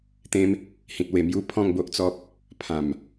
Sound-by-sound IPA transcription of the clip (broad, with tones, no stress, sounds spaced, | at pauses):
t̪ ẽ˦ m | h ĩ˨ t̚ w e˨˩ m j u˧ pʰ ɔ̃˥˧ ŋ b o˦ ʔ t͡s ɔ˦ p̚ | pʰ ã˨˩ m